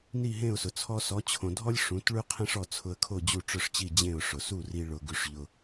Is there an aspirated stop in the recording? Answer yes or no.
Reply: yes